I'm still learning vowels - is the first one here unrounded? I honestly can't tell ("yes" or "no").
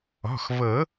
no